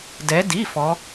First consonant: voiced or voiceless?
voiced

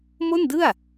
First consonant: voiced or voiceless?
voiced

